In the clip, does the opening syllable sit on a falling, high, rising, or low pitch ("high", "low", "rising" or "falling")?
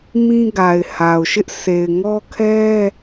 high